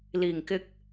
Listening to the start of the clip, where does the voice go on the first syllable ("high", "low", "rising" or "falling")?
low